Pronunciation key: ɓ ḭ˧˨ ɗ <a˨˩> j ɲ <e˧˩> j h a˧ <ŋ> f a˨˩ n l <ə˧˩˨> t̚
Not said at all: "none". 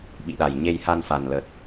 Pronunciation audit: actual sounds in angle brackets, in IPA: a˨˩, e˧, n, ə˨˩

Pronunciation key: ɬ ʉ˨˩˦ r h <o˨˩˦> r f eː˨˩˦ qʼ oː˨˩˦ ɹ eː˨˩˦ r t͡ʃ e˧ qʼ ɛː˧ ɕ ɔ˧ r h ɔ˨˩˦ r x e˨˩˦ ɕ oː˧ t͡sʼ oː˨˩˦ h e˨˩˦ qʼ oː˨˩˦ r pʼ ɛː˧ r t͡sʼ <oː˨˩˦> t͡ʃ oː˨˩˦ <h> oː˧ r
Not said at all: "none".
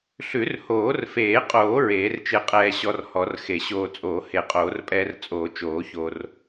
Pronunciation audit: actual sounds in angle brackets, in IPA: oː˨˩˦, oː˨˩˦, ç

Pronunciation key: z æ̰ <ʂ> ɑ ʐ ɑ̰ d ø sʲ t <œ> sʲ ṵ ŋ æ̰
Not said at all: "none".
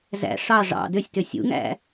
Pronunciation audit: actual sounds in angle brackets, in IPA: ʂ, ø

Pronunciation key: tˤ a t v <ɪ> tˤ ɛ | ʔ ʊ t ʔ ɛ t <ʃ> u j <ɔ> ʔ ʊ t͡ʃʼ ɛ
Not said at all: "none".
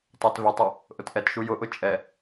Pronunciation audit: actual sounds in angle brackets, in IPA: ɪ, ʃ, ʊ

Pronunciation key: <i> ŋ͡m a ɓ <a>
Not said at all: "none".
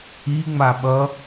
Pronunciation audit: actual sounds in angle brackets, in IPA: i, ʌ

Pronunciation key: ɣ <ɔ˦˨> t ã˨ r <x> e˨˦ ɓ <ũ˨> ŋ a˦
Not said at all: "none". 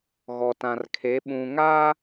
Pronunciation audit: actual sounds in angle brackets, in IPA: ɔ˨, kʰ, ũ˨

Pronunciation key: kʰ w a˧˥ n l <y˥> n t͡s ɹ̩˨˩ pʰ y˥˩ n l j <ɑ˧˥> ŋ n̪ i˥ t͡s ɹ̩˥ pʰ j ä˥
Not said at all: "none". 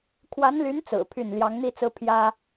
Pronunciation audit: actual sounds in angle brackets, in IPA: y˧˥, ɑ˧˥

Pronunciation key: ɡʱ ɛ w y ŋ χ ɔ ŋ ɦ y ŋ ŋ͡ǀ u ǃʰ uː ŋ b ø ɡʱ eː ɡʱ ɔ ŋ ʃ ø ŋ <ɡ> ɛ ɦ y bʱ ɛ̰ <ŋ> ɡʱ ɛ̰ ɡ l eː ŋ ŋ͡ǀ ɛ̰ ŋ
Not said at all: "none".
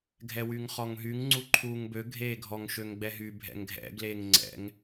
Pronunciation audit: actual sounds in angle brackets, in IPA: ɡ͡b, ŋ

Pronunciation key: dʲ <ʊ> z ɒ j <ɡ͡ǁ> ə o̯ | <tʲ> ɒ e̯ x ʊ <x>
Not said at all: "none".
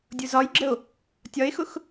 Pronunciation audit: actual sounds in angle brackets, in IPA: ʊ, ɡ͡ǁ, tʲ, x

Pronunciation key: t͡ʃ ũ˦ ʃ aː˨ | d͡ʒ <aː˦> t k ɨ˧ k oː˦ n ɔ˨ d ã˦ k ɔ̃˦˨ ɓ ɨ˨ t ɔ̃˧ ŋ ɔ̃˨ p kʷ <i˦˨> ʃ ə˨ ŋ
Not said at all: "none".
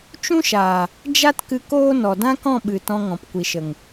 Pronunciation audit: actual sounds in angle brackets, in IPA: a˦, i˨

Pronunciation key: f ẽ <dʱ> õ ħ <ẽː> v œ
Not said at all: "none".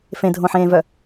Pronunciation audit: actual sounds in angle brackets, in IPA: dʱ, ẽː

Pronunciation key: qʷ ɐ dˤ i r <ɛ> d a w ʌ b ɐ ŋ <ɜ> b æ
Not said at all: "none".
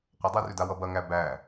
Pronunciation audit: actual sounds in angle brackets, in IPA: ʏ, æ

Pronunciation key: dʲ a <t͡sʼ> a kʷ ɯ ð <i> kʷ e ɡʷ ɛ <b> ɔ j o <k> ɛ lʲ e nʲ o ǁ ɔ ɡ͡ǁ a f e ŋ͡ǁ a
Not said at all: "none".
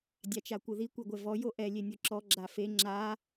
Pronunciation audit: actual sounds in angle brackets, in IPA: t͡ʃ, i, v, ʔ

